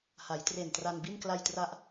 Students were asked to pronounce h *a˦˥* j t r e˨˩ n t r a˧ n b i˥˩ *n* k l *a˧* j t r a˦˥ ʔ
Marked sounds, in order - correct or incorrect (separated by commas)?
incorrect, correct, correct